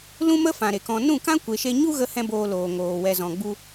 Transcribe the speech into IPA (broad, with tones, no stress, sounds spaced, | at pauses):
l ũ˦ m ə˦ f ã˨ ɾ e˨ k ɔ̃˧ n ũ˦˨ k ã˦ kʷ e˨ ʃ e˧ ɲ u˦ ɣ ə˦ h ɛ̃˦ b oː˧ l oː˨ ŋ oː˨ w ɛ˨ z ɔ̃˨ ɡ͡b u˧